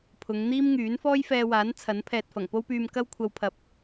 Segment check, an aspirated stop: present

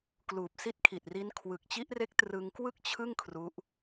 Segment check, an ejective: absent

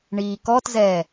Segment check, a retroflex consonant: present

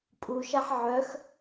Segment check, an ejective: present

